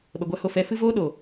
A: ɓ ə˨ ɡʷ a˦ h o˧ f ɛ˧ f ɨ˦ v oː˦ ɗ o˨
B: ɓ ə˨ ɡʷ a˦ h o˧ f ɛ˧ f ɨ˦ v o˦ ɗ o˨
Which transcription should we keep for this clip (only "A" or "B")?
A